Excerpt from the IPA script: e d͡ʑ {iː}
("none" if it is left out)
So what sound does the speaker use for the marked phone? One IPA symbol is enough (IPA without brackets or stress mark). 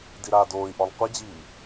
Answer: iː